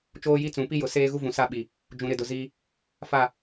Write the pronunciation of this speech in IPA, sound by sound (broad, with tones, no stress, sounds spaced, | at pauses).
t͡ʃ oː˦ j i˦ t͡s ũ˨˦ p i˦ j ʊ˨ s eː˦ ɣ u˦ v ũ˨ s a˦ ɓ i˨ | d͡ʒ ũ˨ ɾ ɪ˨ d ʊ˨ z iː˦ | f a˦˨